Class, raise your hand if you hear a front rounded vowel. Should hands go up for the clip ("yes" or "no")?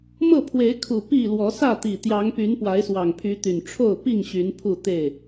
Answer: yes